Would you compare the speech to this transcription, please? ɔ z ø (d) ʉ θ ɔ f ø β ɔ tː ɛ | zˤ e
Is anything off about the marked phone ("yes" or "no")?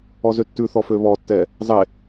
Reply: yes